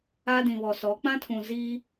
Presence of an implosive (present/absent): absent